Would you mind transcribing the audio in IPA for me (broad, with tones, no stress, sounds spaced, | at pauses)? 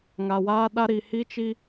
ŋ a˨ w aː˦ ɗ a˦ ɾ i˨ h i˦ t͡ʃ i˦